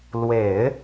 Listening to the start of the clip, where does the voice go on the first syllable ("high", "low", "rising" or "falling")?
low